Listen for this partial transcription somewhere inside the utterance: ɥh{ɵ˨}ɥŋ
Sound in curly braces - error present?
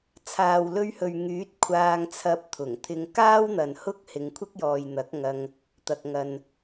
no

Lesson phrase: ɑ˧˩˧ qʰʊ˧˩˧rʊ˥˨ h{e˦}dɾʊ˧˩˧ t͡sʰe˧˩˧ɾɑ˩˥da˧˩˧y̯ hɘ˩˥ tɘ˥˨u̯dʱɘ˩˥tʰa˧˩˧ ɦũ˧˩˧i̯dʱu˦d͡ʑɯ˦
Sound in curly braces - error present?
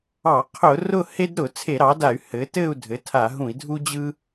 no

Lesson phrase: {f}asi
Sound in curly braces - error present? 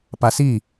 yes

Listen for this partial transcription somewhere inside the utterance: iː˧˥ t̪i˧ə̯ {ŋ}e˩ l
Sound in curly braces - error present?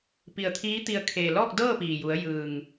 yes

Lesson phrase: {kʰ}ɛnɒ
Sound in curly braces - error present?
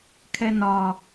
no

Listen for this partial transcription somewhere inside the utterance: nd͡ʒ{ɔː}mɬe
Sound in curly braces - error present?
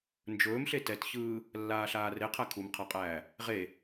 yes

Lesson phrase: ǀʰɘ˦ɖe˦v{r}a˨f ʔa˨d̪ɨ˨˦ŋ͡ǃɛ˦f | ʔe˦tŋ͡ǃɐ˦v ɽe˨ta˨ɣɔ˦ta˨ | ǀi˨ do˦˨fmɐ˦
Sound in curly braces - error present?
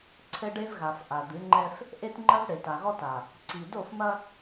yes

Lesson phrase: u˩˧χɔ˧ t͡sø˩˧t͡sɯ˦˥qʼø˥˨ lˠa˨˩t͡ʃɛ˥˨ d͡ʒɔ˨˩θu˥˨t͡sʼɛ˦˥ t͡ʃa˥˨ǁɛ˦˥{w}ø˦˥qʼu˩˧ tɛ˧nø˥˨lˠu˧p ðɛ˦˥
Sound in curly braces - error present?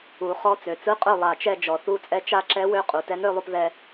no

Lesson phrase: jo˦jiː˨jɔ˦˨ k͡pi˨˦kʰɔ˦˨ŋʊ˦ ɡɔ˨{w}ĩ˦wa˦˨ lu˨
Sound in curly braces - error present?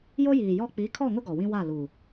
no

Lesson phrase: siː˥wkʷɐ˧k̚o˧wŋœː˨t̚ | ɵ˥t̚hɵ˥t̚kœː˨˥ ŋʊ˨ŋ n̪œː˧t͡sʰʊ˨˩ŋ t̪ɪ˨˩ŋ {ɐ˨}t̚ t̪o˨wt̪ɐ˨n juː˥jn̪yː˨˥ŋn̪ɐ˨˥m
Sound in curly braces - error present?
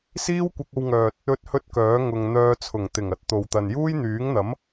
yes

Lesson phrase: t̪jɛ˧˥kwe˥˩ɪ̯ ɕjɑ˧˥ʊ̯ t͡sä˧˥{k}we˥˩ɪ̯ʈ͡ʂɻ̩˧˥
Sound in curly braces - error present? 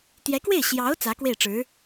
no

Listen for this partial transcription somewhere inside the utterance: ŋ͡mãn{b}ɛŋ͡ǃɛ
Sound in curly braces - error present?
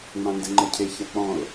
yes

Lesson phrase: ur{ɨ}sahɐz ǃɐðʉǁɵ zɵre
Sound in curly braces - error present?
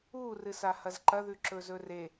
no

